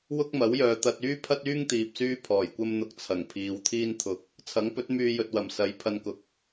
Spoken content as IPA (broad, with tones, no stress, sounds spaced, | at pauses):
w ʊ˥ k̚ m ɐ˨˥ w j œː˨ t̪ ɐ˧ t̚ yː˥ pʰ ɐ˥ t̚ yː˥ ŋ t̪ iː˨ p̚ s yː˥ pʰ ɔː˨˩ j kʷ ɐ˥ m n̪ ʊ˧ k̚ t͡sʰ ɐ˨˩ ŋ pʰ iː˨˧ w t̪ʰ iː˥ n t̪ʰ ʊ˧ k̚ | t͡sʰ ɐ˨˥ ŋ p ɵ˨˥ t̚ m yː˧ j ɵ˨ t̚ w ɐ˨˩ m s ɐ˨˧ j pʰ ɐ˧ n k ʊ˨ k̚